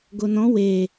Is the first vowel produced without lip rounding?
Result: no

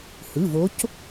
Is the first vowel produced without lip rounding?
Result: yes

